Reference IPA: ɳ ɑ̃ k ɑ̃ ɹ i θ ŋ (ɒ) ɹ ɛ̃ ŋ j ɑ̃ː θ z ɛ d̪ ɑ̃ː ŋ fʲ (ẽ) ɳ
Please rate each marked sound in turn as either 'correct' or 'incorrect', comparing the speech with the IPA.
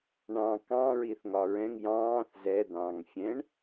correct, incorrect: ɛ̃

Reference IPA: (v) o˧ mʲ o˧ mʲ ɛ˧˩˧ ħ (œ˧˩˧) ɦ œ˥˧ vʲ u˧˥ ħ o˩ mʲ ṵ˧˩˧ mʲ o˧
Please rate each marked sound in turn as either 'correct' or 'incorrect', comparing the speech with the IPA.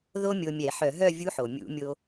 incorrect: ð, correct

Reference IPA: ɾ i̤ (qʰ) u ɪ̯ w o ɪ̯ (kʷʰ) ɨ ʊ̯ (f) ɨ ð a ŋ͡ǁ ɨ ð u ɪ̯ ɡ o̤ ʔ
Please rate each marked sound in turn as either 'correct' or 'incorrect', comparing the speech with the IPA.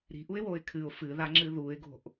incorrect: ʔ, incorrect: kʰ, correct

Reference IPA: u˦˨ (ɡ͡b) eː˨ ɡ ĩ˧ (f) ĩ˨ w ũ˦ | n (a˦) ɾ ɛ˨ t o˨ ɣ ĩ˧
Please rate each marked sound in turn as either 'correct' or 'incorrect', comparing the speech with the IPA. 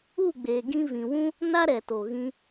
correct, incorrect: v, correct

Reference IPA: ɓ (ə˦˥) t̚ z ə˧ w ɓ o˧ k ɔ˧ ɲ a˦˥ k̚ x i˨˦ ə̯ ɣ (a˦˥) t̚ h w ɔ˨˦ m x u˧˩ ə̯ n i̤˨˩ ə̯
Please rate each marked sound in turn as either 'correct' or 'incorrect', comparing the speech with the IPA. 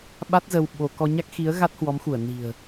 incorrect: a˦˥, correct

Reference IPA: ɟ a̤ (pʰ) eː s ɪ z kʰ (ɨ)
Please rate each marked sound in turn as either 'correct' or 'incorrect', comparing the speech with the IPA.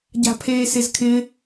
correct, incorrect: ɪ

